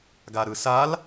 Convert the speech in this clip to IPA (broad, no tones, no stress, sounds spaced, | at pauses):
ɡ a ɾ ɯ s a l